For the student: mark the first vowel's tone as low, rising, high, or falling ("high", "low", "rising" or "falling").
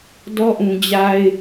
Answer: high